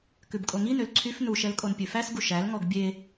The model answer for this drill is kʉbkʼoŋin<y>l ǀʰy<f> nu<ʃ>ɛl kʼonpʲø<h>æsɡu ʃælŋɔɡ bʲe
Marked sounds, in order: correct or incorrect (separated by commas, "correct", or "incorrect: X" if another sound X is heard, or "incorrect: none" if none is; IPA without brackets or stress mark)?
incorrect: ø, correct, correct, incorrect: f